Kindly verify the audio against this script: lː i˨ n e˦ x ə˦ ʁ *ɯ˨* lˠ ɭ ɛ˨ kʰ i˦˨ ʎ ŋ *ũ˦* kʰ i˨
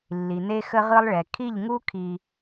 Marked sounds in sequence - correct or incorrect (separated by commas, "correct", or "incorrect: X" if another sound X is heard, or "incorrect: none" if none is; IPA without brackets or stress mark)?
incorrect: ɯ˦, incorrect: u˦